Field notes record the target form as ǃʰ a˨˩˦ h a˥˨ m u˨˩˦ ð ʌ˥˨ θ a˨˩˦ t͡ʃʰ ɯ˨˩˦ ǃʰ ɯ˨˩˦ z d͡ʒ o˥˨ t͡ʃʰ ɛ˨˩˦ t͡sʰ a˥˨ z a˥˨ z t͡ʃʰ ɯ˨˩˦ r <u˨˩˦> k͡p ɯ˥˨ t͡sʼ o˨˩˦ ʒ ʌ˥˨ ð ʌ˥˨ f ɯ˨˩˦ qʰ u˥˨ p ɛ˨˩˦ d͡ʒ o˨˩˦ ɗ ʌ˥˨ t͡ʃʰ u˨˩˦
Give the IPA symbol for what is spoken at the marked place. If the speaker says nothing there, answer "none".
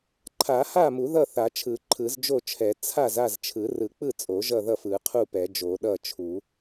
ɯ˨˩˦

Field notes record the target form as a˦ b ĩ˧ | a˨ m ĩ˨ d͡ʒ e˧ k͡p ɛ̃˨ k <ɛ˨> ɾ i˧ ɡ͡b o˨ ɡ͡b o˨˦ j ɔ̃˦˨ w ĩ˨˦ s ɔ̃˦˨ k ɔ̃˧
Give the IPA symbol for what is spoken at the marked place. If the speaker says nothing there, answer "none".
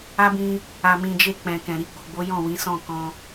ɛ̃˨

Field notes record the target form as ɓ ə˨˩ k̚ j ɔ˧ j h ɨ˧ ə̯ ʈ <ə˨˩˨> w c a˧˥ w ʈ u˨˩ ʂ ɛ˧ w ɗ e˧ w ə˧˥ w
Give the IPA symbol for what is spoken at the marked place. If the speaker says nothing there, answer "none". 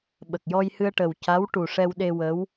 ə˨˩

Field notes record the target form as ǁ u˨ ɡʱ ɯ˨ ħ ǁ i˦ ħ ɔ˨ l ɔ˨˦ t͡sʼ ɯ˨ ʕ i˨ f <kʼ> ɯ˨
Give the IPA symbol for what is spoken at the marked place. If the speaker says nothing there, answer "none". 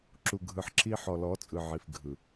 ɡʱ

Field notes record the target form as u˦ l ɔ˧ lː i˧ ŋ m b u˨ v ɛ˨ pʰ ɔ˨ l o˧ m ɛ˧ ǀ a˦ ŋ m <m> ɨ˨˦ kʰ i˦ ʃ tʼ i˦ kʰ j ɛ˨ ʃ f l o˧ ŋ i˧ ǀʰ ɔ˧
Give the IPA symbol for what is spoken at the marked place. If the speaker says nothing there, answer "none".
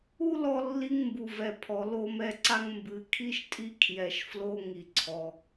b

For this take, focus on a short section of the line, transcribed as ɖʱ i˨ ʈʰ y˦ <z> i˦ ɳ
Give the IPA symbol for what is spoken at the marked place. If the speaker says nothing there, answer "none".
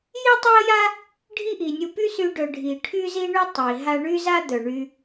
z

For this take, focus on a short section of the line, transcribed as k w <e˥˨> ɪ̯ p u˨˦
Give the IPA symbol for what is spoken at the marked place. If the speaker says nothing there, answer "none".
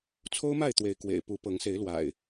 ḛ˨˩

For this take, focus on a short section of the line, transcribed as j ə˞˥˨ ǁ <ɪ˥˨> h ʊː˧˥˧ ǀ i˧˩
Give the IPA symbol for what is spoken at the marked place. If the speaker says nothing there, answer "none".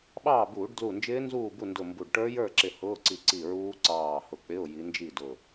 ɪ˧˩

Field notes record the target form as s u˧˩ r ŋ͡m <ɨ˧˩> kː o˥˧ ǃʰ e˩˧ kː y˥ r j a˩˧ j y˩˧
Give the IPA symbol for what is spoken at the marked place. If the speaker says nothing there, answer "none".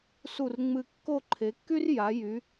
ɨ˧˩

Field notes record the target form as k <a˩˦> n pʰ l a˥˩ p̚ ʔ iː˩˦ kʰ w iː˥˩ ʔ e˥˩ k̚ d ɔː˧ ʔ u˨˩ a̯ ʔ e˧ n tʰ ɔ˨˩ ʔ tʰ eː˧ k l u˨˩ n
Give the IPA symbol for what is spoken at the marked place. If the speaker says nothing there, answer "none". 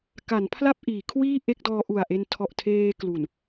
a˩˦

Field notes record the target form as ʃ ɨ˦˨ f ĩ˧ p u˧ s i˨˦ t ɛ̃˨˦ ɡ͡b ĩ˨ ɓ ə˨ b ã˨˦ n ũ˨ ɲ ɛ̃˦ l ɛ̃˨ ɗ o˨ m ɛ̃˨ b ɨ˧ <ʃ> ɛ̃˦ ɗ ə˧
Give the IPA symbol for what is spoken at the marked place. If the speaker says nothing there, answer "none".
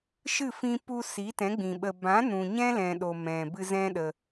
z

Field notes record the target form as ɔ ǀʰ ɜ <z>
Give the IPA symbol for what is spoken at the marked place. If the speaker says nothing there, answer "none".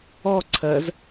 z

